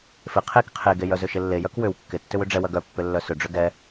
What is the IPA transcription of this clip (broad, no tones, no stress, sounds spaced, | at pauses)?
f ɪ qʰ e k qʰ e ɡ e j œ z ʏ ʃ ɪ lː e j œ k w ʏ w kː ɪ tː ʏ w ʏ ɖ͡ʐ ɛ w ɐ ɡ œ pː ʏ lː œ s ʏ ɖ͡ʐ ʏ ɡ ɛ